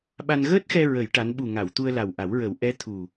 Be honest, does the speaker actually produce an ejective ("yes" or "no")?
no